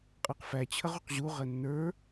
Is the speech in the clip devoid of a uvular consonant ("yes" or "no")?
no